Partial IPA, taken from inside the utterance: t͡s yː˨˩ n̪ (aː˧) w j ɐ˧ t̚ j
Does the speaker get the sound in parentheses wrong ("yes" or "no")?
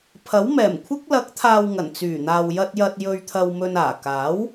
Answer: yes